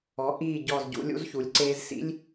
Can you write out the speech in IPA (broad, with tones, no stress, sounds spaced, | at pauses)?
ɔ˩˧ ʔ iː˨˩ ɟ ɔ˨˩ z ɟ ṵ˩˧ lʲ ṵ˧ z ç u˩˧ lʲ ǀ eː˧ z s ḭ˥ lʲ